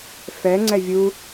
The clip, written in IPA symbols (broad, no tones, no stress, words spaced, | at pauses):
fɛ ŋ͡ǀɛvʲu